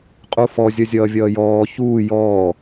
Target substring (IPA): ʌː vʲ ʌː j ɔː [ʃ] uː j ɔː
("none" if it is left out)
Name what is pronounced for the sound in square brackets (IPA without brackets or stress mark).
ç